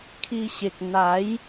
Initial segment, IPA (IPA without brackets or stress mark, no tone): kʰ